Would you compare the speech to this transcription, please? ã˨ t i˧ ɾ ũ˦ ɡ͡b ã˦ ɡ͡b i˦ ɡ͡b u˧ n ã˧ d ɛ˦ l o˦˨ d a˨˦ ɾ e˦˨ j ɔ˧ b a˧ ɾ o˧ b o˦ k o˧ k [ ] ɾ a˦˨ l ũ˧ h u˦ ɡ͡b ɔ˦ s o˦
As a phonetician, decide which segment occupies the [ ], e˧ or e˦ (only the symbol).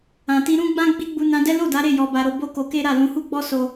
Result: e˦